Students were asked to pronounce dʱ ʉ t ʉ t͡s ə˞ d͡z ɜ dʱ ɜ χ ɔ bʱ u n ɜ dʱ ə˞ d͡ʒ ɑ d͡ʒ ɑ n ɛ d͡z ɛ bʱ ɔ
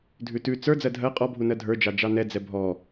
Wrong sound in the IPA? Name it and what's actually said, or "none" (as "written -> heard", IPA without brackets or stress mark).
χ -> qʼ